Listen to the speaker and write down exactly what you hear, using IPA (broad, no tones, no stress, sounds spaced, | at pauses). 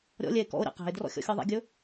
ɾʲ ɔ̰ lʲ ɛ e̯ k ɔ̰ o̯ ɾʲ ɑ̰ q æ̤ e̯ d r ɔ̰ xʲ ɔ̰ xʲ ɔ ðˤ ɛ̰ ɡʲ ɵ